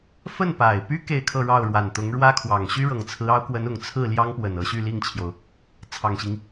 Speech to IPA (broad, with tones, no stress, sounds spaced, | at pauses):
f ə˥˩ n p a˨˩ ɪ̯ p y˥ k e˥˧ ɪ̯ kʰ ɤ˥˧ ɻ ɑ˥˩ ʊ̯ ɻ w a˨˩ n t̪ ʊ˧˥ ŋ ɻ w ä˥ kʰ w ɑ˨˩ ŋ ɕ y˥ ɻ ɤ˨˩ ŋ t͡sʰ ɹ̩˧˥ ɑ˧˥ ʊ̯ k w ə˧˥ n ʊ˨˩ ŋ t͡sʰ ɹ̩˥˩ l j ɑ˥ ŋ p w ə˨˩ n ɤ˧˥ ɕ y˥˧ l i˥˩ ŋ t͡ɕʰ j o˩ ʊ̯ | t͡sʰ ɑ˨˩ ŋ ɕ i˦ ŋ